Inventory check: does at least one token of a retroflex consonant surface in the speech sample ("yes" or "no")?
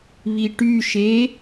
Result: yes